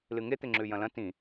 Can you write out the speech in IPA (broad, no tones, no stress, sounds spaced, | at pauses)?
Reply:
l ɨ ŋ e t̪ e ŋ͡ǁ ʉ j ɐ̃ l ɐ̃ t ĩ